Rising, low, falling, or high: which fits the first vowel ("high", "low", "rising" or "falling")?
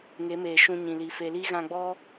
rising